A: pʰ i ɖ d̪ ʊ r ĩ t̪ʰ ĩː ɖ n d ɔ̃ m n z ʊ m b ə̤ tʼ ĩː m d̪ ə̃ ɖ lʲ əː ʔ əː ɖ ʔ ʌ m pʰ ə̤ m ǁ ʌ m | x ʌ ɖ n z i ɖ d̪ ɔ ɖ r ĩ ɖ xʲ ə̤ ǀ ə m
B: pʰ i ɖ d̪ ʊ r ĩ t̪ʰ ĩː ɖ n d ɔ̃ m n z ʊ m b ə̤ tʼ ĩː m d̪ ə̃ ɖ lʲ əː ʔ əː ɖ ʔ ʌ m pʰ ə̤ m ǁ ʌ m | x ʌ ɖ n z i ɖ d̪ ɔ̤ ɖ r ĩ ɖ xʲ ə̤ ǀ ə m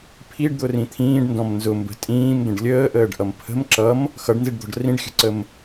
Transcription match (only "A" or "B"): B